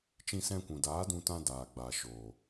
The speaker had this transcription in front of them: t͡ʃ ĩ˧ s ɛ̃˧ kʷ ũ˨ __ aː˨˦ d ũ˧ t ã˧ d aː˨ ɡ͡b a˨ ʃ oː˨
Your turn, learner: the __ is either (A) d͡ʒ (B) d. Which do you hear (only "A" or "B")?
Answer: B